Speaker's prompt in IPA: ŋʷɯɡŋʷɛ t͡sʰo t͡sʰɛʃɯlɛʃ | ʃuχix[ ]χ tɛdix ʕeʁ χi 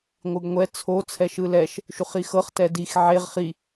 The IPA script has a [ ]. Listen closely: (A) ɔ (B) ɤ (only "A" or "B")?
B